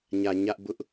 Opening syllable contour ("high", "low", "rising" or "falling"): low